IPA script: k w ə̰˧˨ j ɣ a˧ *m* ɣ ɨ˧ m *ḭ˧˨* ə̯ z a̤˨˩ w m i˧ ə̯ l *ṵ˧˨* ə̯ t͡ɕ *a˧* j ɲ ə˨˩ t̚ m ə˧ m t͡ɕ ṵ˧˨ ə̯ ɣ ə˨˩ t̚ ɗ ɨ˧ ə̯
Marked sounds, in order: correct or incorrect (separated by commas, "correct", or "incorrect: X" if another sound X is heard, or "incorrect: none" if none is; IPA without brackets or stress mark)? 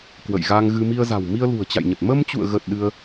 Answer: incorrect: ŋ, incorrect: i˧, incorrect: ṳ˨˩, incorrect: a̰˧˨